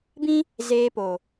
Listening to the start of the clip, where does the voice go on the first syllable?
high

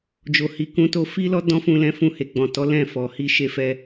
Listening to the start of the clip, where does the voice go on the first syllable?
low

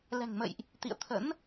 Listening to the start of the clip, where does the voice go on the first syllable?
low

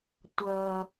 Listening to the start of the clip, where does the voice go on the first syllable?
low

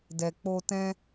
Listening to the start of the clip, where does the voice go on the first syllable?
low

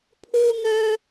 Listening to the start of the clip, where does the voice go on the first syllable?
high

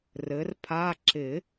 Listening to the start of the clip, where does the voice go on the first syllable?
rising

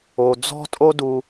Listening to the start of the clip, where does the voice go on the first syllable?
low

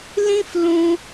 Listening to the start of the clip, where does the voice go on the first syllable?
high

